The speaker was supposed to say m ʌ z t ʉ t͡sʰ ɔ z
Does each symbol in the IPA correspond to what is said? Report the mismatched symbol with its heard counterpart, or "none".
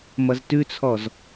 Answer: none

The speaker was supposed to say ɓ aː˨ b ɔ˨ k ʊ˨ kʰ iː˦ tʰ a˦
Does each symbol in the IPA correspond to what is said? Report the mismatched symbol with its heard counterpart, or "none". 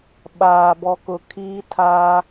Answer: none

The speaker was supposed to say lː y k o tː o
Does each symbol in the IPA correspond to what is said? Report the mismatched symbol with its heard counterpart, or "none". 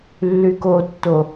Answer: none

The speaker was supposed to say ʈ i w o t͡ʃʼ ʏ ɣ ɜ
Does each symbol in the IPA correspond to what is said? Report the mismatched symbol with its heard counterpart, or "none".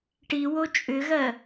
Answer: none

